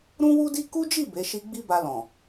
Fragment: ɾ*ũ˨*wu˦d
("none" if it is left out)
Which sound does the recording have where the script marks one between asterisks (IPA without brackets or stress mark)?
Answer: ũ˦